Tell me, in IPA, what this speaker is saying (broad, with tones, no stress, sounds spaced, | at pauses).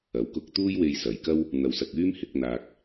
ɐ˨˥ w k ʊ˧ k̚ t̪ uː˥ j w e˧ j s ɐ˨ j k ɐ˥ w | n̪ ɐ˧ w s ɐ˧ k̚ yː˥ m h ɪ˨˥ k̚ n̪ aː˧ k̚